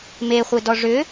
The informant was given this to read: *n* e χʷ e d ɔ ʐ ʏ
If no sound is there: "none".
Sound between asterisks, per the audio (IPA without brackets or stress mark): m